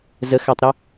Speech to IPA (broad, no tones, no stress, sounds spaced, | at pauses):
z ə x a tˤ ɾ ɛ